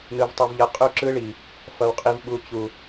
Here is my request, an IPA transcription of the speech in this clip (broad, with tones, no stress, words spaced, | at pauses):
nɯ˨vtˤu˨vʎʌ˨ qʼu˦ǁɯ˦ɭi˨ | fʌ˨wqʼi˨vɓu˨ t͡ɕu˨